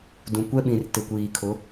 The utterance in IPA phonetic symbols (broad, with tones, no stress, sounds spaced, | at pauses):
d ũ˨ kʷ ɛ˦ ɓ ĩ˨ r t ɪ˨ kʷ iː˨ kʰ ʊ˨˦